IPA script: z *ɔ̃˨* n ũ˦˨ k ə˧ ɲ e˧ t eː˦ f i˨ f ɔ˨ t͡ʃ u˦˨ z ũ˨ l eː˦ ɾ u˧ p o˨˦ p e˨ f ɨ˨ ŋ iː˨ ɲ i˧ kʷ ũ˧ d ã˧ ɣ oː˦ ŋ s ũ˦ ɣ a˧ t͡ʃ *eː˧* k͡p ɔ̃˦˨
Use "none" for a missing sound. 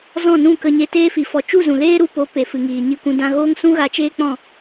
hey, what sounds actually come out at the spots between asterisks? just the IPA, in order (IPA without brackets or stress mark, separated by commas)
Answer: ɔ̃˦˨, eː˦